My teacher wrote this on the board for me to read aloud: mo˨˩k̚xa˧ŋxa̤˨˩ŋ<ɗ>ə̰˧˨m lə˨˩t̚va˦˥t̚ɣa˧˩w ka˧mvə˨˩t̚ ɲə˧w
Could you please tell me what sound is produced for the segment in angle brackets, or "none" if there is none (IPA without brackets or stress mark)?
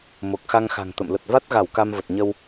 t̪